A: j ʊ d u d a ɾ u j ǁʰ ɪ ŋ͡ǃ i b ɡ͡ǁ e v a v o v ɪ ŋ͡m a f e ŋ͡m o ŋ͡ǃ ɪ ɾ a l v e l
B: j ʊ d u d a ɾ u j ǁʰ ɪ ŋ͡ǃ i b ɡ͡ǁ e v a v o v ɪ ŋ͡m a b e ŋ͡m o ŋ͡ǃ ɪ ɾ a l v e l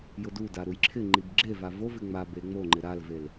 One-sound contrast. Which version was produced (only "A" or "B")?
B